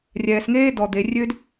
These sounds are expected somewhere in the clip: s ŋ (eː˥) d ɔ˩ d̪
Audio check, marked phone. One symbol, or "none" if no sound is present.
eː˥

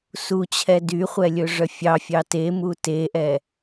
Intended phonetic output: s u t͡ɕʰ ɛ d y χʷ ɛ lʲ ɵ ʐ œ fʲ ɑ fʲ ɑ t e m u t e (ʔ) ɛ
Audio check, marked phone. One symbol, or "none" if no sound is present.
ʔ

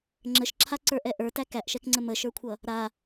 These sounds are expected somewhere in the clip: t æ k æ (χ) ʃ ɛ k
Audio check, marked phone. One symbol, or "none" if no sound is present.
ʔ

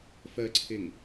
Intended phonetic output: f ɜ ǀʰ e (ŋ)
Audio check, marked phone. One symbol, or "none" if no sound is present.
ŋ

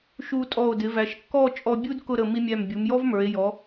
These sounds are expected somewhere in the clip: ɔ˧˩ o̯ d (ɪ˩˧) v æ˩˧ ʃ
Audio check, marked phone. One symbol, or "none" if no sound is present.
ɪ˩˧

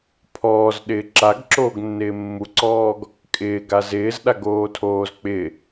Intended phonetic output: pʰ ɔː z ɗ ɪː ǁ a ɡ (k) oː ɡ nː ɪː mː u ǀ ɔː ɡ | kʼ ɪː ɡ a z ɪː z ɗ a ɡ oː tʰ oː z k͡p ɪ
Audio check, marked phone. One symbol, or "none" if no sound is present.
ǁ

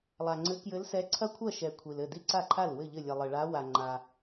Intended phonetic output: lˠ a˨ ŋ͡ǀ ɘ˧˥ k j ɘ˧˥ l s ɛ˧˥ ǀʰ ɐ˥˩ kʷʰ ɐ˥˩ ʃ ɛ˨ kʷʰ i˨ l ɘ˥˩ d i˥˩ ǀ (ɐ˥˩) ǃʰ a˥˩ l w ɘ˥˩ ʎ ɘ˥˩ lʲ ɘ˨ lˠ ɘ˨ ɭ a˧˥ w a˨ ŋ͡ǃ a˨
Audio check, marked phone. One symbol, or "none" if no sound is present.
a˥˩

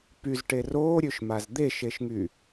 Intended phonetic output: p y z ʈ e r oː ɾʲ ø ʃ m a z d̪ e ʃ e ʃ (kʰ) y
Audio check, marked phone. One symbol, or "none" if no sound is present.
ŋ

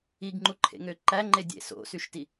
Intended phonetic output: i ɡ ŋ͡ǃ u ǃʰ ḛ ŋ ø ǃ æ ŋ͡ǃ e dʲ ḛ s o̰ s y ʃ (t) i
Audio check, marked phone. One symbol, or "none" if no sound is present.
t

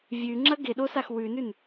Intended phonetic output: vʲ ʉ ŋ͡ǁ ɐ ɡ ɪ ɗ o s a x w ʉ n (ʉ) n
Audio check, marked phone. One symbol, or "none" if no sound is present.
ʉ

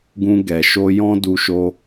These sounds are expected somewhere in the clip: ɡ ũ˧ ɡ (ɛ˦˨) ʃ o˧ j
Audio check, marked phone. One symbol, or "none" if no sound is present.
ɛ˨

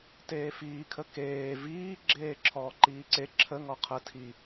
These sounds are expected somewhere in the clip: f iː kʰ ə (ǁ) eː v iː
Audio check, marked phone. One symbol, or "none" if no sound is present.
k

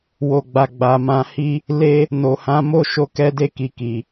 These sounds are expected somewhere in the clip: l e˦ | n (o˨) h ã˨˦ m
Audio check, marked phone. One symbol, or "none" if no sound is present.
o˨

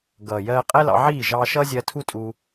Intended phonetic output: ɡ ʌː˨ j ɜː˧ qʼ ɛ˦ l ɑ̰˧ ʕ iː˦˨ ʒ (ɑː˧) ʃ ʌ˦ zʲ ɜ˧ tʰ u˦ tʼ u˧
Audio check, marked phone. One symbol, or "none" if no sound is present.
ɑː˧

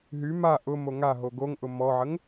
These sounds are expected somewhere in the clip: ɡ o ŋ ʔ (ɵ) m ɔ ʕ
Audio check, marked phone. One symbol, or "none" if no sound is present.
ʊ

